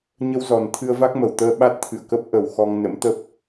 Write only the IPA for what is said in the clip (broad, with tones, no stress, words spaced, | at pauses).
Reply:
ɲə˧wzɔ˨˩nt̪ʰɨ˧ə̯va˦˥k̚ mə˨˩wt̪əː˧ ɓa˦˥t̚t̪ʰɨ̰˧˨ə̯kə˦˥p̚ ʔə˨˩w xɔ˧ŋ nə̰˧˥mt̪ə˦˥p̚